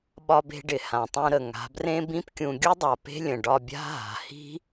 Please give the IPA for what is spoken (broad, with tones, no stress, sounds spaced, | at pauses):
ɓ ɒ˧ b e̤˧ ɖ ɪ˨ h ã˨ tˤ ũ˧ ɾ ə˨ ŋ a̤˨˦ b r ẽ˦ b ĩ˦ p kʲ ũ˧ ɡʲ u˦ dˤ a˨ p e̤˦ lʲ ə̃˨ ɖ ɒ˧ bʲ a̤˦ ɦ a̤˨ h i̤˦